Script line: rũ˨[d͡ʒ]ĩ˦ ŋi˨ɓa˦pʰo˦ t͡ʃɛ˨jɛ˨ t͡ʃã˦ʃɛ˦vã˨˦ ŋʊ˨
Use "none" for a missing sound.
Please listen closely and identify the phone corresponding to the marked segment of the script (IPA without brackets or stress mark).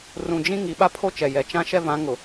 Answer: d͡ʒ